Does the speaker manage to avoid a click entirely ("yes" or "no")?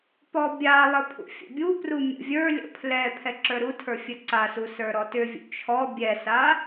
no